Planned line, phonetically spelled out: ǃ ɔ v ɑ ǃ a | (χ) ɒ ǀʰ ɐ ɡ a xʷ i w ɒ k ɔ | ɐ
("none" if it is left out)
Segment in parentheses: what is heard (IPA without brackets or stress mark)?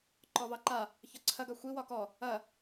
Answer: ç